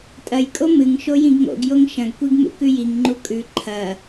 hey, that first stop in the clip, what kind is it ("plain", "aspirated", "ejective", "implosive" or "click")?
ejective